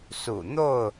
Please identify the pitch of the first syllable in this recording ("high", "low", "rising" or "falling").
low